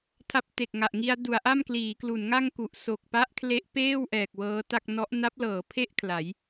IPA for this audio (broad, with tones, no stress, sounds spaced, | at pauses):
tʰ a˦˥ p̚ t e˨˩ k̚ ŋ a˨˩ ʔ ŋ i˧ a̯ d u˩˦ a̯ ʔ a˥˩ m k l iː˩˦ k l u˩˦ n ŋ a˥˩ ŋ k u˨˩ ʔ s o˨˩ k̚ p a˦˥ ʔ kʰ l e˦˥ ʔ p eː˥˩ w ʔ ɛː˨˩ k̚ w ɤː˦˥ t a˥˩ k̚ n ɔ˦˥ ʔ n a˦˥ p̚ l ɤː˩˦ pʰ e˥˩ ʔ kʰ l a˩˦ j